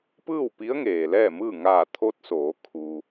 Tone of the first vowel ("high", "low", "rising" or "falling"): falling